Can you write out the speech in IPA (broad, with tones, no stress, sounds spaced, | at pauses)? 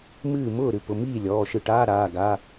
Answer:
m ɨː˥˩ m ʊː˥˩ ɾ ɨ˩˧˩ p ʊ˩˧˩ m iː˥˩ lʲ ɔː˩˧˩ ʃ ɨ˧˩ ʈ aː˧˥˧ ɾ aː˩˧˩ ɡ a˩˧˩